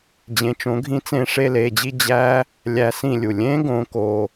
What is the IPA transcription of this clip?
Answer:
d͡ʑ ẽ˨˥ t͡ʃ õ˨˥ ɡʱ ĩ˦˥ t͡s ẽ˥˧ ʂ e˥˧ l e˩˧˩ d͡ʑ i˥˧ d͡ʑ æ˦˥ | lʲ æ˦˥ s ĩ˥˧ lʲ u˩ lʲ ẽ˦˥ ɡ õ˨˥ k o˩˧˩

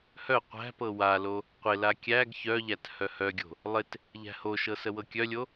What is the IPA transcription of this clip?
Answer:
h œ qʷ æ̤ p ɤ w a l o | qʷ ɪ l a kʲ æ ɡ ç œ ʎ æ t h œ h œ ɡʲ o̤ | lˠ ɪ t | ʎ æ̤ h o ʃ ɤ s ə w ɤ kʲ œ lʲ o

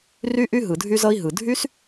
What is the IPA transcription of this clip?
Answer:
r y˥ ʔ y˥ ɦ ɯ˩ dʱ y˧ z ʌ˧ i̯ ɦ ɯ˩ dʱ y˥ s

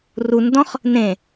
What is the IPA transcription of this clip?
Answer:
r u n d ɔ̃ χ | n ẽ

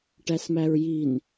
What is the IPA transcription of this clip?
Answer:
ʈ æ s m æ ɹ j i n

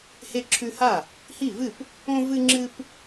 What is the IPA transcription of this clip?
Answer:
h e˦ ǁʰ ʉ˦ h a˥˨ | h i˥˨ v ɨ˥˨ p | õ˦ v ɨ˦ ŋ͡ǁ ɨ˦ p

